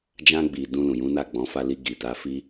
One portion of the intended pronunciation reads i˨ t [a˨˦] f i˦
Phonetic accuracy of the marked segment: correct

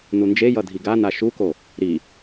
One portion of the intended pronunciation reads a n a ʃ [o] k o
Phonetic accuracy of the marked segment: incorrect: u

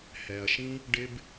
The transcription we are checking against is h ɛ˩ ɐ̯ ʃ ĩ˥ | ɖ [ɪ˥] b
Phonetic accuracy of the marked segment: correct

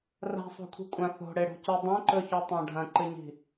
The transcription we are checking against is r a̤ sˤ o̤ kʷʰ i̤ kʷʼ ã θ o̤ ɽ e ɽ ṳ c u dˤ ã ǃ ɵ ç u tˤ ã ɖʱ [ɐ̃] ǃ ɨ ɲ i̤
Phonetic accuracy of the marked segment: correct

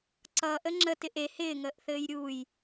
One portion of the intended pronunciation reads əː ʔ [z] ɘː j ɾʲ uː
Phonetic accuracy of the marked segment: incorrect: θ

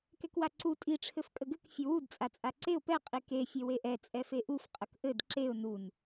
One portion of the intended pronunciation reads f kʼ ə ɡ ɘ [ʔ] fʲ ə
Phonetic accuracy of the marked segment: incorrect: k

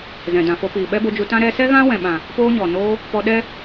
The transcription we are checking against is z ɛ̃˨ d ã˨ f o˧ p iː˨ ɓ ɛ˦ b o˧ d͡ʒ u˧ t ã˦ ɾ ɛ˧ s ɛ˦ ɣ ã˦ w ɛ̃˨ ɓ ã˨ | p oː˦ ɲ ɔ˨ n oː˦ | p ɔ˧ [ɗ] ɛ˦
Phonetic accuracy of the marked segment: correct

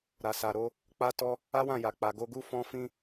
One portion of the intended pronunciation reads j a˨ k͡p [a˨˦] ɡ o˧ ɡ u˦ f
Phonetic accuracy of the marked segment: incorrect: a˨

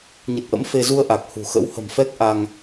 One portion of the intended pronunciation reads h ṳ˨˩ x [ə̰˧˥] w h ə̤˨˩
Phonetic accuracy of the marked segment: correct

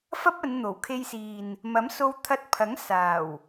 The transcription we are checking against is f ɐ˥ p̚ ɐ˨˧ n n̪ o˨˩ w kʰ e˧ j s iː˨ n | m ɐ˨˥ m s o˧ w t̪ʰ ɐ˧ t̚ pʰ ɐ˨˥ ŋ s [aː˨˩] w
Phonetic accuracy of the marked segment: correct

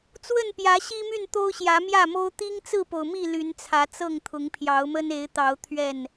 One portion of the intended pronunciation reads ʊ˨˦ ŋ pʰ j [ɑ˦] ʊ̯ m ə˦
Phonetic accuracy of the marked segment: incorrect: ɑ˨˦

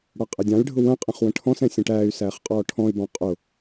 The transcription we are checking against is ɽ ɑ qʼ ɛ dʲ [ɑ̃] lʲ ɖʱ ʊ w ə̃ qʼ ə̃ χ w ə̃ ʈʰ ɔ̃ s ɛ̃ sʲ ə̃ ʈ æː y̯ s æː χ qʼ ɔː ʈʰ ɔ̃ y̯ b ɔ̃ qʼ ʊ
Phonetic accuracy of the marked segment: correct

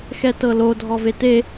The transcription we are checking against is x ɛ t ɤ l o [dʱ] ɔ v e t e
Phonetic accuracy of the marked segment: correct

